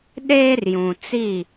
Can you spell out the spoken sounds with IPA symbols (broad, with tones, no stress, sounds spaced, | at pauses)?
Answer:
ɗ eː˦ r j ũ˨ t͡s i˦˨